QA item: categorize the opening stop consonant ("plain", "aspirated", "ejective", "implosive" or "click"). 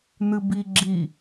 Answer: plain